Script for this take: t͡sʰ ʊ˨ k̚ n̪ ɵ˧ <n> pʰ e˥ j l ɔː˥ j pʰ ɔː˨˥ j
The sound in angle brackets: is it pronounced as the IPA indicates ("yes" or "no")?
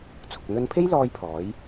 yes